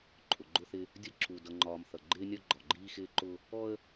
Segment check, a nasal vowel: absent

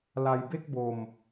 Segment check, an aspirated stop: absent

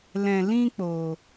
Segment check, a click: absent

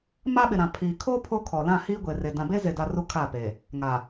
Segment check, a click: absent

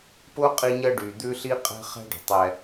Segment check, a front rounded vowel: present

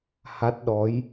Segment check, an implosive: present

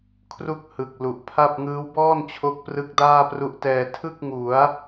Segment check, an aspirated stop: present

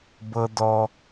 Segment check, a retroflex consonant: absent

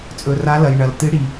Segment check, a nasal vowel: absent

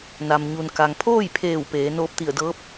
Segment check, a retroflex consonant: absent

